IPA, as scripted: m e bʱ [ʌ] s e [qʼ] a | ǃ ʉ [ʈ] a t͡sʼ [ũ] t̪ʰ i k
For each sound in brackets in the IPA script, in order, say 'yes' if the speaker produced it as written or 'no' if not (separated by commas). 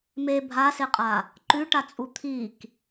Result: no, yes, yes, no